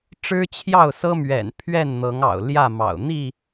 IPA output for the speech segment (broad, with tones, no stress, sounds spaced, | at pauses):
ʈ͡ʂ ɻ̩˦ t͡ɕʰ j ɑ˥˨ ʊ̯ s ɤ˦ m ɥ ɛ̰˨˩ n pʰ ɥ ɛ˥˨ n n̪ ɤ˨˦ ŋ ɑ̰˨˩ ʊ̯ l j ä˥˨ m ɑ̰˨˩ ʊ̯ n̪ i˥˨